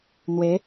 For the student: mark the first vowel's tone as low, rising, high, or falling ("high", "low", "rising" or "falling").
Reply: rising